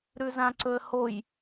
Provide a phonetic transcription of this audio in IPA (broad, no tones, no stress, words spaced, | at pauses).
ɾʉzãǀɵə̯hoj